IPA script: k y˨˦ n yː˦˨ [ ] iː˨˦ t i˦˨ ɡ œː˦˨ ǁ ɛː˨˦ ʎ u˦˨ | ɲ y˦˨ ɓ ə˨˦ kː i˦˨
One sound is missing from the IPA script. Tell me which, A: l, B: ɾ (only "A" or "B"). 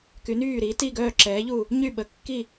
B